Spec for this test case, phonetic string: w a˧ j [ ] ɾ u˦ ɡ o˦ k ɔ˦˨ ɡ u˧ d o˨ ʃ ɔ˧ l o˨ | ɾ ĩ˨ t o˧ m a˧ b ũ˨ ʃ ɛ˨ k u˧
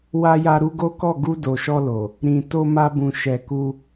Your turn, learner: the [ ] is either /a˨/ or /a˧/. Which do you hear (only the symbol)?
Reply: a˧